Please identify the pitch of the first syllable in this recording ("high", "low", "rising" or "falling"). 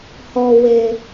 low